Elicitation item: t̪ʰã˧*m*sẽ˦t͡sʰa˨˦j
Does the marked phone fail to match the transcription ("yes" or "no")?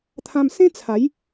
no